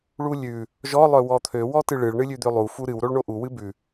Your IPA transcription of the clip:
ɭ u lʲ ʉ | ʒ ɔ lˠ œ w ɔ t̪ʰ ø w ɔ t ɨ ɭ ɨ ɭ ɳ ɨ lʲ ʉ d̪ ø lˠ u f u ɾ ɨ w ɾ o ɭ ɳ o ʔ u w ɨ b ʉ

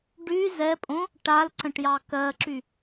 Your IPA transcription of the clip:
ɖ y z ɛ pʼ õ | ʈ a l ǀ ə̃ ʈ j ɑ k ɜ ǁ y

